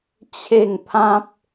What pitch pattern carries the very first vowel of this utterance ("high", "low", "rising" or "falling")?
falling